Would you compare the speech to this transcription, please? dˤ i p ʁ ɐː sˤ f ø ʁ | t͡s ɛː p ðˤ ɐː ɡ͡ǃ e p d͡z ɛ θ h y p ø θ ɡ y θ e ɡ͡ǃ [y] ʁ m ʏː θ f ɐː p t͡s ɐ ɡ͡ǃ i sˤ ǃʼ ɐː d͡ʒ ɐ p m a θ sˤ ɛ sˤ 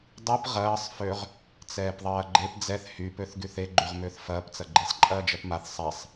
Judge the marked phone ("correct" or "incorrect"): correct